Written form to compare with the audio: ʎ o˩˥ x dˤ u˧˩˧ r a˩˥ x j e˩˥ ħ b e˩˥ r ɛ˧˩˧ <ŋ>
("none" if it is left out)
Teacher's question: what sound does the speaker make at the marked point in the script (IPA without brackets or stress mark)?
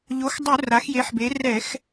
x